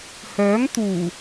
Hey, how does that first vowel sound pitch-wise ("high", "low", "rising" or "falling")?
rising